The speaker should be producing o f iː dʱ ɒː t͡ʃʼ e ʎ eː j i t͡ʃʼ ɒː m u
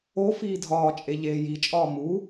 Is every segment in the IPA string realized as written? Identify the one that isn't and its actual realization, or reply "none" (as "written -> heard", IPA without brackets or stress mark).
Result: none